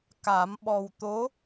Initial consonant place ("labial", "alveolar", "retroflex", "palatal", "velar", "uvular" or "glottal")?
velar